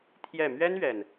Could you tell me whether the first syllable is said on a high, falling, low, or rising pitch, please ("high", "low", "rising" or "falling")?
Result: falling